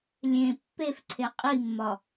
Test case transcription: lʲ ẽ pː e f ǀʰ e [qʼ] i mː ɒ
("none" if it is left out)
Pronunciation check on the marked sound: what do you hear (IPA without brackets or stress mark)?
qʼ